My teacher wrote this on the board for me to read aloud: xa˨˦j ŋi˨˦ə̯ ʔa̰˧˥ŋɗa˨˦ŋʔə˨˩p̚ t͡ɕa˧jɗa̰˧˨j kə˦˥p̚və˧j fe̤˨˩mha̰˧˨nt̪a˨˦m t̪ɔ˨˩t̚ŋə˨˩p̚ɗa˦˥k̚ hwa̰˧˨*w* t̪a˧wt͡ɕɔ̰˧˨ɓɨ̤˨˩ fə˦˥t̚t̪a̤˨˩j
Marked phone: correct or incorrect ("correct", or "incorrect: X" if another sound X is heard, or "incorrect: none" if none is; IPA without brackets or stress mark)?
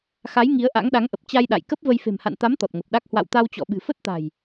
correct